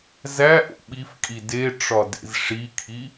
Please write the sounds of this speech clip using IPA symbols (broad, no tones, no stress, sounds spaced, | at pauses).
z æ ʔ o̰ ɓ i f kʼ i d e ʈ͡ʂ ɒ d ḛ z ʂ i kʰ i